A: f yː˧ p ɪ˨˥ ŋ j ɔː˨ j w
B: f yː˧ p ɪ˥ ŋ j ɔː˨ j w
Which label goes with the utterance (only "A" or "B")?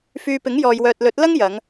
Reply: A